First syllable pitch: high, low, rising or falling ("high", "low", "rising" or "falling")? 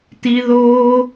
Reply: high